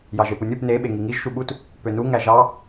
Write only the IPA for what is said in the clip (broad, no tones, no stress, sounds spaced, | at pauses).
j ɑ ʒ e p u nʲ u p n e ɓ e ŋ i ŋ i ʒ ʃ u ɓ u t | p ø n u ŋ æ ʒ ɑ